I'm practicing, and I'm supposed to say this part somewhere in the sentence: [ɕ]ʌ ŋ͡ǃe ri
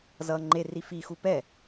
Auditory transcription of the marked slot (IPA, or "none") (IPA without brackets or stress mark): z